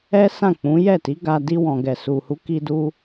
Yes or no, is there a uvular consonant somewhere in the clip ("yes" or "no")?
no